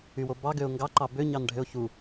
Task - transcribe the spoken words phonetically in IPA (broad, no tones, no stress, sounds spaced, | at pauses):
y w o b ɑ ɡ ø ʊ̯ ŋ ɡ ɑ ǃ ɑ b ø ɲ ɑ n ɖʱ ø ʊ̯ ç u